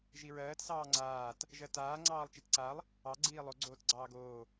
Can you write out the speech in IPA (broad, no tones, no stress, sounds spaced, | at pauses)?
ʒ i ɹ ɜː t s ɑː ŋ͡ǀ aː t | ʒ ɜ t aː ŋ͡ǀ ɑː lˠ t͡ʃ i t ǀ a lˠ | ɑ ɡ͡ǀ iː lˠ o ɡ͡ǀ oː t ɡ͡ǀ ɑː ɡ oː